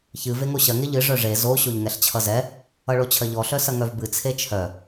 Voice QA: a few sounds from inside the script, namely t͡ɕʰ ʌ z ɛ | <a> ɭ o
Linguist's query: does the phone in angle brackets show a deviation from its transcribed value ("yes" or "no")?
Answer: yes